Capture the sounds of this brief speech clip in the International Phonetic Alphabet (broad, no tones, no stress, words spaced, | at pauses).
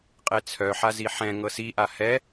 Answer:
qʼet͡sʰœ ħaziħɛ̃ ŋɤsi ʔahɛ